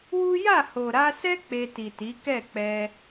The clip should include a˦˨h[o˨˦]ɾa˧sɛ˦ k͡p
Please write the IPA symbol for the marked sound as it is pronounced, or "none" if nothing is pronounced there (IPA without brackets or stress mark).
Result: o˨